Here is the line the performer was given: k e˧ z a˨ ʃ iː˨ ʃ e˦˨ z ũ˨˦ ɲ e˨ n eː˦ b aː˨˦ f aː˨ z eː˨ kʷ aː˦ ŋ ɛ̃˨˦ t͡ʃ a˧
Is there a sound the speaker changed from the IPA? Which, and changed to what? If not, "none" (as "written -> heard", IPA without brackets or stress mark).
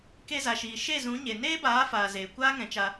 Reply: none